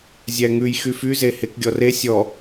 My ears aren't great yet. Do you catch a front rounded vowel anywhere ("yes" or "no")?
yes